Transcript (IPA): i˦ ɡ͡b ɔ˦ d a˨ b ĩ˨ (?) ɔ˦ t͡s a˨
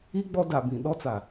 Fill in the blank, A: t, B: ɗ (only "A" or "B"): B